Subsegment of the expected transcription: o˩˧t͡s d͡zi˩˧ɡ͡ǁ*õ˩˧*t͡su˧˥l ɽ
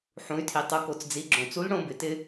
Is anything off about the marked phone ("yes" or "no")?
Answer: yes